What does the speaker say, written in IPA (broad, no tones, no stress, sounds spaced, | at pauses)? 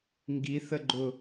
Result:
ŋ ɡ i θ ə ɡ͡ǃ ʊ